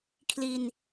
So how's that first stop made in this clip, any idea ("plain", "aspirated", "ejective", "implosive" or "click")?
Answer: aspirated